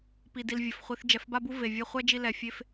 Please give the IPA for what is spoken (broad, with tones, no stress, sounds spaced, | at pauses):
p i˨ d i˨ l vʲ ə˩ f χʷ i˨ θ d͡ʒ ɛ˩ f b a˦ b u˦ v e˩ vʲ ɛ˦ χʷ ɛ˥ d͡ʒ i˦ l ɛ˨ fʲ e˦ f